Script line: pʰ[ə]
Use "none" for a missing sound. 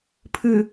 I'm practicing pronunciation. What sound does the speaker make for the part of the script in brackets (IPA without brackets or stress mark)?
ɨ